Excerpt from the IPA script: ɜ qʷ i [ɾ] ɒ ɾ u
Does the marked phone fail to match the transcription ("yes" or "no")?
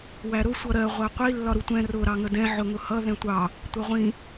yes